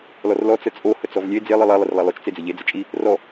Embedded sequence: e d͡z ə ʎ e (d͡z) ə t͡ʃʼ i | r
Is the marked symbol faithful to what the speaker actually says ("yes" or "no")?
yes